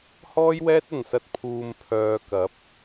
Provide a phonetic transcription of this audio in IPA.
hɔː˥jwɛː˥t̚ɐ˨˩nsɐ˧t̚ pʰuː˨m pʰœː˨kɐ˨˥p̚

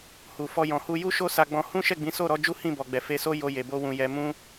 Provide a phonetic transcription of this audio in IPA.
hu˨fɔ˧ jɔ̃˨hu˧ju˦ ʃo˦sa˧ɡ͡bɔ̃˧ hũ˦ʃɛ˦˨ɡ͡bĩ˨˦so˦˨ ɾɔ˨˦ d͡ʒu˦hĩ˦˨bɔ˨ɡ͡bɛ˨ fe˧so˦ jo˧ je˨bo˧wũ˨ jɛ˧mũ˦

